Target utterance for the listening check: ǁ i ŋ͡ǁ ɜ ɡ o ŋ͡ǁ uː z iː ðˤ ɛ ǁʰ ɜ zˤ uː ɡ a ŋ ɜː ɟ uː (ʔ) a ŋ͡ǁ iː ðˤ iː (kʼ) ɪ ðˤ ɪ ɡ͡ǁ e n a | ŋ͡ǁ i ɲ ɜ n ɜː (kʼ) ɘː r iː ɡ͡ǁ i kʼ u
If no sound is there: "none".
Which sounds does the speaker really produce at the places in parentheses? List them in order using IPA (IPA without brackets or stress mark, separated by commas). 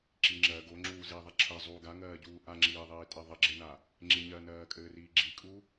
ʔ, tʼ, kʼ